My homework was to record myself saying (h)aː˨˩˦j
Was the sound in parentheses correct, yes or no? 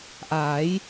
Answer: no